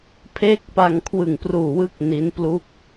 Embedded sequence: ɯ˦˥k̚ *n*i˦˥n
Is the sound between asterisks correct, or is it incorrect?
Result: correct